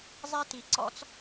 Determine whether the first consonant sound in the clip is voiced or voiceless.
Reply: voiced